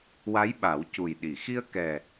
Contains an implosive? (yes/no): yes